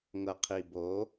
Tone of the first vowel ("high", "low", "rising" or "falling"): low